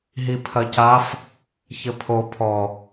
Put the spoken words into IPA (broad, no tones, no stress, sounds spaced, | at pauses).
ɦ i pʰ ɐ c a f | ç ɘ pʰ o pʰ ɔ